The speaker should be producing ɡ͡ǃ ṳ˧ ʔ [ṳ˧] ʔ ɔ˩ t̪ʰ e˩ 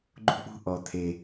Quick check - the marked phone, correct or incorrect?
correct